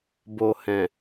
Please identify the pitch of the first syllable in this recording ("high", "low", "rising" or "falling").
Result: low